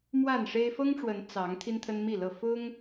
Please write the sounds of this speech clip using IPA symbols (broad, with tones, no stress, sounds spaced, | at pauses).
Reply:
m w a˥˨ n ʂ e˦ ɪ̯ f ɤ˦ ŋ ʈ͡ʂ w ə˨˦ n t͡s ɑ˨˦ ŋ t̪ʰ i˦ n t̪ʰ ə˦ n m i˥˨ l ɤ˥˨ f ʊ˦ ŋ